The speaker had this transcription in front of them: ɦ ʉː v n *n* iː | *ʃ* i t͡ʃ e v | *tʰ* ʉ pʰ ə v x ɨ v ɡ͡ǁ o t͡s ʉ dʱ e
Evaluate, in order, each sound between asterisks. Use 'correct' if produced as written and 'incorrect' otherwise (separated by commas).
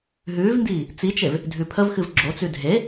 incorrect, incorrect, incorrect